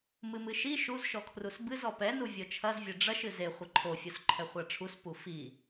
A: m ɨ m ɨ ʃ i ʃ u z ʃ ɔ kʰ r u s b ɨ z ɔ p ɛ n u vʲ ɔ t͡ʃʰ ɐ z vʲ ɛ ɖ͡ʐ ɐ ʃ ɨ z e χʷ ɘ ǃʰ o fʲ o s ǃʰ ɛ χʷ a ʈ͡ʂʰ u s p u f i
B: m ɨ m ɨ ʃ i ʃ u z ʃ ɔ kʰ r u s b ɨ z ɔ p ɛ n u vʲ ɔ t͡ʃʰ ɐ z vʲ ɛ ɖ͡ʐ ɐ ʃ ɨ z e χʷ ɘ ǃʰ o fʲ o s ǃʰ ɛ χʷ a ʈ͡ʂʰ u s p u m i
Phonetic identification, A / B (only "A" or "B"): A